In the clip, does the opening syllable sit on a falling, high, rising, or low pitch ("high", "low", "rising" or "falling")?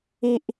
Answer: high